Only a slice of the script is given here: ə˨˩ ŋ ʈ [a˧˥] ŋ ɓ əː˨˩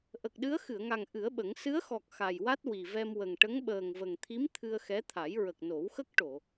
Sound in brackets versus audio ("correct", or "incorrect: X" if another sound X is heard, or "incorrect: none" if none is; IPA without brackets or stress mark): incorrect: ə˧˥